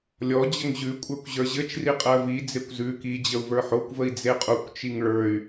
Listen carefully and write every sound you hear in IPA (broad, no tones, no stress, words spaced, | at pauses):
lʲɔ d͡ʑəŋʑʉ kʷʼə˞kʷʑə˞ʑɘt͡ʃ riqʼɜvi d͡zekʷzʉ ki d͡ʑəu̯və˞ħokʷvəi̯ d͡zeqʼukʷt͡ʃiŋ ɭə˞y̯